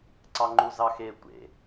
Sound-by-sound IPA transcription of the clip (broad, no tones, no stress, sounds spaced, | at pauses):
ǀ ɑ ŋ͡ǃ u z ɑ x e tʷ ḛ